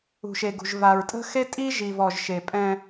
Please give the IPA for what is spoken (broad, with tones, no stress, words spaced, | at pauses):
ṳ˨ʃe˨ɡṳ˨ʒ va˨ɹtʼə̤˦xe˦tʼi˦ ʒi˨vɔ˨ʒ ʃe˨pʼɛ̃˦